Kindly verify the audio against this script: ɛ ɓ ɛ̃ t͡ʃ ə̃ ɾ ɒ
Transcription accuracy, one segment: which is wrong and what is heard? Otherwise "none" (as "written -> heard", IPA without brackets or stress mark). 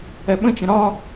ɛ̃ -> ə̃